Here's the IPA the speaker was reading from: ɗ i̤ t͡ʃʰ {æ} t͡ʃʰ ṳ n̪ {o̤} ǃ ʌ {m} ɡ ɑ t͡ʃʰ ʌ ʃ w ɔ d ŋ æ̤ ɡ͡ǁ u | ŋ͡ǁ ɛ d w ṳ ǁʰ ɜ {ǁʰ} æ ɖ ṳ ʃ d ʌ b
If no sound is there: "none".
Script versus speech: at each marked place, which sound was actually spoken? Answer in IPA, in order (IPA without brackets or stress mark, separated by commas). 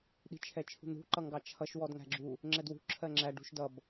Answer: ɛ, ṳ, ŋ, ŋ͡ǁ